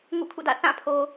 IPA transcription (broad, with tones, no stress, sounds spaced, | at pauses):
ŋ ṵ˦˨ kʰ ṵ˦˨ d ä̰˦˨ θ ã˦˨ pʰ o˨